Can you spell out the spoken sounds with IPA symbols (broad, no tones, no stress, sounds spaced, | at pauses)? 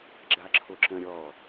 ɡ͡ǁ a ǁʰ o ǁ ə̃ ɾʲ ɔ